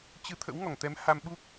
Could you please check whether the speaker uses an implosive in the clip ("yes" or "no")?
yes